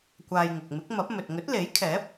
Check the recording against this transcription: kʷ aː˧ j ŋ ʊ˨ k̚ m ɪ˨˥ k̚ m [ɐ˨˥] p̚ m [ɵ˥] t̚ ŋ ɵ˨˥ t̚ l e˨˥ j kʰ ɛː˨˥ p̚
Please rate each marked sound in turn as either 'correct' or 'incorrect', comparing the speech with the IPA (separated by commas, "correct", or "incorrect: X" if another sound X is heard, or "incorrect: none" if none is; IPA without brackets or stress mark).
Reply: correct, incorrect: ɵ˨